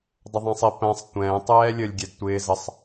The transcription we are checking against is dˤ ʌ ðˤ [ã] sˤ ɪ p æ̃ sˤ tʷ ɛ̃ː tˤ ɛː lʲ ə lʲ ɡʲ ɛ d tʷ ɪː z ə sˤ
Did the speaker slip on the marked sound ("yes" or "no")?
yes